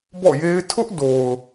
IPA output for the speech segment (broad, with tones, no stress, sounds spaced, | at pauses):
b ɔ̰˦˨ j e˦ ɪ̯ tʰ ʊ˦ ʔ d o˨ ʊ̯